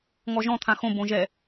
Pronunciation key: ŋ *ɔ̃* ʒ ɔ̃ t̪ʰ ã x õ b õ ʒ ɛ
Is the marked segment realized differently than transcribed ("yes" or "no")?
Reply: yes